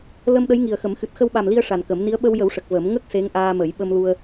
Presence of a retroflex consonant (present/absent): present